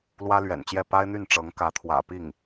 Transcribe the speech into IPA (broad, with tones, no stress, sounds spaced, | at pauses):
l w ä˥ l ɥ ɛ̰˨˩ n t͡ɕ j ɛ˥˩ p a˥ ɪ̯ n̪ y˥˩ n ʈ͡ʂ ɤ˧˥ ŋ k ä˧˥ t̪ʰ w ä̰˨˩ p i˥˩ ŋ